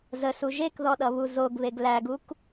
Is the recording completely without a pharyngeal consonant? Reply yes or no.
yes